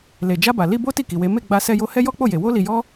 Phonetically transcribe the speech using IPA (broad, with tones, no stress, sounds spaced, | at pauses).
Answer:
l e˨ d͡ʒ a˧ b a˨ l i˧ b o˦ t i˦˨ k i˨ w e˨˦ m e˦˨ ɡ͡b a˧ s ɛ˧ j o˧ h ɛ˦ j ɔ˦ k͡p o˦˨ j e˨ w o˧ l i˨ j ɔ˧